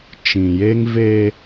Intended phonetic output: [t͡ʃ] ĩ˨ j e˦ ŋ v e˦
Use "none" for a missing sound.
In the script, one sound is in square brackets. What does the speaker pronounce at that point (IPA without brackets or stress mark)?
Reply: t͡ʃ